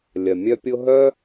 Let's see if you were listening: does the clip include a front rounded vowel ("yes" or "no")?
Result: yes